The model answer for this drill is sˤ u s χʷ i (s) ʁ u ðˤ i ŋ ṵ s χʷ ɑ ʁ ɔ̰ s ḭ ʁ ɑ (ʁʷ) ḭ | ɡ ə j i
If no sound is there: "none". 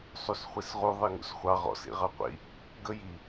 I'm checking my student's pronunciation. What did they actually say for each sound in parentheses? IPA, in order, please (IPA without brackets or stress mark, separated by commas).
s, qʷ